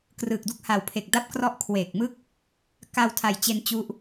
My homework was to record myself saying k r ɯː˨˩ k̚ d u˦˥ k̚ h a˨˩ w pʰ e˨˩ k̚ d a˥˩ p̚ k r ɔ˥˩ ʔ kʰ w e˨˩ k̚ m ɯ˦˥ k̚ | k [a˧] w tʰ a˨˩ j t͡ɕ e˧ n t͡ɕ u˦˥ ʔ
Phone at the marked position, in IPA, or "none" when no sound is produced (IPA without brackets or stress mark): a˧